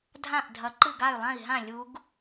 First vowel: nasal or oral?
nasal